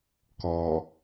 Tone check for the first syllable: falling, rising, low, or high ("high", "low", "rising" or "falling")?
low